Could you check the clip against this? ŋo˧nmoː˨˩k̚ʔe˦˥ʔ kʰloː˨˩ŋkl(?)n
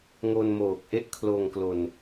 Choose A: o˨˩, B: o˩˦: A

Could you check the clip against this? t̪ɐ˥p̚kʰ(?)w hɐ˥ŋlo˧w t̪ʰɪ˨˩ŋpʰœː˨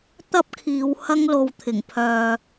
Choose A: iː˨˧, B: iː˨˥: A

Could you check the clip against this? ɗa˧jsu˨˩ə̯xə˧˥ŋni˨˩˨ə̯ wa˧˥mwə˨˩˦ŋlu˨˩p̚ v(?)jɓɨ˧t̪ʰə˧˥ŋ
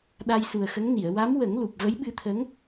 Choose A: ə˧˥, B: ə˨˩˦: A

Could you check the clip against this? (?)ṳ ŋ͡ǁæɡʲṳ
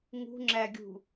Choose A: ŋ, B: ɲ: A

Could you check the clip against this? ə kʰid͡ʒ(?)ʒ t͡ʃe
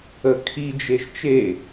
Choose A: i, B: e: B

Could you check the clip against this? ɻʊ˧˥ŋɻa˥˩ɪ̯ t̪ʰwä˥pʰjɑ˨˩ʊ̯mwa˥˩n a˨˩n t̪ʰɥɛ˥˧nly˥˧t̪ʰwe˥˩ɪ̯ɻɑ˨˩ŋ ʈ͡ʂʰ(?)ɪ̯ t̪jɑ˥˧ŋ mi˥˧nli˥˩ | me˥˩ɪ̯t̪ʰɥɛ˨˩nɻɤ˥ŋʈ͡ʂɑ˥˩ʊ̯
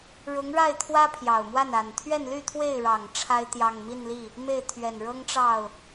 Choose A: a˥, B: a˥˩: A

